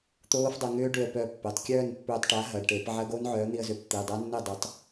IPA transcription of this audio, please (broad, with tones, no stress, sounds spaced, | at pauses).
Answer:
t̪ oː˦˥ f dˤ ɐ˧ ŋ ʏː˦˥ ɖ ʏ˧ ə̯ p œ˧ pː e˩˧˩ tˤ kʲ œː˥˨ n pː ʏː˧ tˤ ʈ a˨˥ ɦ ɐ˩˧˩ ɖ ʈ e˧˩˧ p ʕ ɐ˦˥ ɡ o˦˥ n ʕ œː˨˥ n̪ i˧ ə̯ z ʏ˧˩˧ p t̪ i˩˧˩ dˤ a˦˥ nː ɪ˥˨ dˤ ʏ˨˥ tˤ